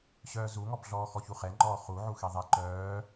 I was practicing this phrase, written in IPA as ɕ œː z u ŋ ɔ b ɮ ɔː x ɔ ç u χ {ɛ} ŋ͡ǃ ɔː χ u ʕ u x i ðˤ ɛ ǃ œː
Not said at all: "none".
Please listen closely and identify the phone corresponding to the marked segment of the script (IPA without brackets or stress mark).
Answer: ɛ